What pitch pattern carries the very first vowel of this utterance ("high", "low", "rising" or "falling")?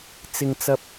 low